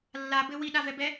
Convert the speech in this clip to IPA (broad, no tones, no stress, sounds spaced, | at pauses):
lː a b ɘ w i ɗ a v ɛ b ɛ